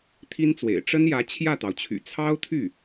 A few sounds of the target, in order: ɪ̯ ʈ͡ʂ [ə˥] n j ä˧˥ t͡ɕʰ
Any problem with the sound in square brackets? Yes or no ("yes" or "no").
no